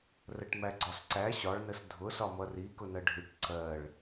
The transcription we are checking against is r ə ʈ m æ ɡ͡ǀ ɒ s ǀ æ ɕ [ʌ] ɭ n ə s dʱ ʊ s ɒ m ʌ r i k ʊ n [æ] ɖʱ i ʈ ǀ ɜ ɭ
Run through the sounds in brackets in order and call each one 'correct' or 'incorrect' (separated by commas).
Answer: incorrect, incorrect